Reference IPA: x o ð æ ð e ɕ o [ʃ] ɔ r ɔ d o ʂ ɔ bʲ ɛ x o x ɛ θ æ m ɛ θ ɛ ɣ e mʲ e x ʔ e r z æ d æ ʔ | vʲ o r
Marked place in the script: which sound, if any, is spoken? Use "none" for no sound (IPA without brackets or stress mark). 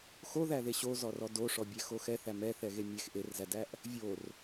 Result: z